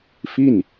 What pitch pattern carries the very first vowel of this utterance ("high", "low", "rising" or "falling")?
falling